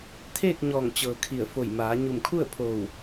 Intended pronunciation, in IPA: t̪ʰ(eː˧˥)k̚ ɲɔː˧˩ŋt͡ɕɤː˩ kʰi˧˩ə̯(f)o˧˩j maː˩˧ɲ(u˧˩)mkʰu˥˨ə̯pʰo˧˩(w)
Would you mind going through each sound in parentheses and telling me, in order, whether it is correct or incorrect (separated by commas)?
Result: incorrect, correct, correct, correct